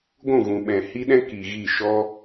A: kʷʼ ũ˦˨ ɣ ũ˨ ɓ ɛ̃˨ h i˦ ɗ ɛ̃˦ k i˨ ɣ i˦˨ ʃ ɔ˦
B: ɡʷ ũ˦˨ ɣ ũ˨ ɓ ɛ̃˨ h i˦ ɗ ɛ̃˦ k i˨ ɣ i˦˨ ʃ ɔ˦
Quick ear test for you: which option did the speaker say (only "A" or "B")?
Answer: B